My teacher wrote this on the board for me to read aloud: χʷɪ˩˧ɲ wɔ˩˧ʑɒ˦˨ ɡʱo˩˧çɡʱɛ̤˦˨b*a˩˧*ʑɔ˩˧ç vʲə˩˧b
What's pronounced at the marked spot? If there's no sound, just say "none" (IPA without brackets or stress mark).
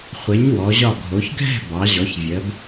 ɑ˩˧